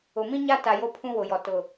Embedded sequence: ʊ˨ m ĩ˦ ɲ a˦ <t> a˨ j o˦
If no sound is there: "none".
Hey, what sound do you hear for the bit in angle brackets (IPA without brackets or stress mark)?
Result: t